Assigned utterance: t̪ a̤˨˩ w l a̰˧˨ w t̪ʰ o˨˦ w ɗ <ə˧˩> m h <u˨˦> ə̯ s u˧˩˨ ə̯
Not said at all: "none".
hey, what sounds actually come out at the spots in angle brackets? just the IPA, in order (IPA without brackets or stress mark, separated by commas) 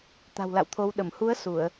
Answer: ə˧˩, u˨˦